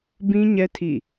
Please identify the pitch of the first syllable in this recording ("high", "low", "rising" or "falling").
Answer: high